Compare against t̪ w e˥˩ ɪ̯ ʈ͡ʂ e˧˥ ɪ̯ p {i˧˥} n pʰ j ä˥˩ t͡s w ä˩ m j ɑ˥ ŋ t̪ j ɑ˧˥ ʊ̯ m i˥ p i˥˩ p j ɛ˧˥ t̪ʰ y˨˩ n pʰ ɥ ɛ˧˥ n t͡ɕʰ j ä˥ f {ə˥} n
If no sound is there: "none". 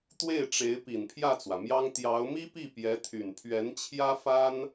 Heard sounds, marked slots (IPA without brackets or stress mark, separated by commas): i˨˩, a˥